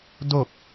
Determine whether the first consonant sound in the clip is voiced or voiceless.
voiced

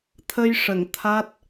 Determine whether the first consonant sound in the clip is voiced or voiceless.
voiceless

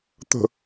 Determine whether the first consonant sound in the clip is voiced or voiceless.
voiceless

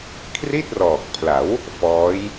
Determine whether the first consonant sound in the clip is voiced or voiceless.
voiceless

